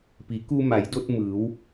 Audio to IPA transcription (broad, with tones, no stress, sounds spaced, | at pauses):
p i˩˧ k u˧ m a˩˧ j d o˧ t̚ m ɯː˩˧ w